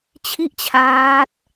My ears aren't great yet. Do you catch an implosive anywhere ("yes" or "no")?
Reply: no